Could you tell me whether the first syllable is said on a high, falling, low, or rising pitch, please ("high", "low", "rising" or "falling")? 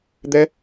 high